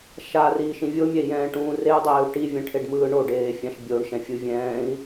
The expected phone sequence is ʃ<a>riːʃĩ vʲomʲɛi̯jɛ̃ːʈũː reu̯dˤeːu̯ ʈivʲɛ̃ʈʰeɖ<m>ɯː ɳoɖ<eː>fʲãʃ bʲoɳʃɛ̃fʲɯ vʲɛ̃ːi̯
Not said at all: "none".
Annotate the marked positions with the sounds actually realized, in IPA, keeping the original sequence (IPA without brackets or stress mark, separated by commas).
a, m, eː